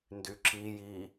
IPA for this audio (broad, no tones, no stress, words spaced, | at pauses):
ndyǁiji